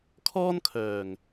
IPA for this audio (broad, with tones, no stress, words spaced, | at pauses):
kʰɔː˥nkʰœː˨˩ŋ